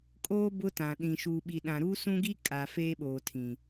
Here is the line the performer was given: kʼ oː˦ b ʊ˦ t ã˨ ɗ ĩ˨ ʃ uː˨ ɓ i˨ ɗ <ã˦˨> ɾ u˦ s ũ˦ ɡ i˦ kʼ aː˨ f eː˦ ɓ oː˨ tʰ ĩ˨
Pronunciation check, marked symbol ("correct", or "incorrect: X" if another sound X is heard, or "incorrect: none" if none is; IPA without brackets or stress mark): incorrect: ã˨